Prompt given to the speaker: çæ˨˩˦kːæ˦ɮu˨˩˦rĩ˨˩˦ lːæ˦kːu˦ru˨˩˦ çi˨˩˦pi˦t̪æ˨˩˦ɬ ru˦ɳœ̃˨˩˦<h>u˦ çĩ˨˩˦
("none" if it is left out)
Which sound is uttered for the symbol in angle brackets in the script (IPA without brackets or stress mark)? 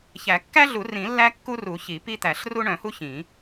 h